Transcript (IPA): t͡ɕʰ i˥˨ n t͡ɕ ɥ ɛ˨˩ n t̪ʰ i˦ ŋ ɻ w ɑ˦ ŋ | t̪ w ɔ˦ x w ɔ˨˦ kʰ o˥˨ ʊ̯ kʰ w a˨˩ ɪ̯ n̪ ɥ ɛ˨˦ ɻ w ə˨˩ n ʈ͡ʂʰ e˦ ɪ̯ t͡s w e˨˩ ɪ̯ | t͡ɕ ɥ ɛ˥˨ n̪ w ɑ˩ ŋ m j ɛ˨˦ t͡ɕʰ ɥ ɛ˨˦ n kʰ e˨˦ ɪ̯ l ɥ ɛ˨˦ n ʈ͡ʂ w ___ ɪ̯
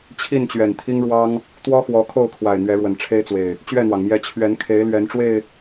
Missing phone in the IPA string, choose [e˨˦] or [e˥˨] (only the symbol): e˥˨